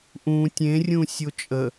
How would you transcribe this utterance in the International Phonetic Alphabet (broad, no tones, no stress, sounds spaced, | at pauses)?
ʔ ũ tʲ ẽ rʲ ũ sʲ o t͡ʃʼ ə